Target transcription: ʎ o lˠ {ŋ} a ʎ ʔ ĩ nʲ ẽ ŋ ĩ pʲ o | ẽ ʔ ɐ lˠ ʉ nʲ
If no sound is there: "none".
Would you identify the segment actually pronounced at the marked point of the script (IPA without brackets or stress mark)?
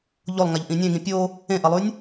ŋ